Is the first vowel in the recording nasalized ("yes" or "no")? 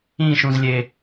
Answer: yes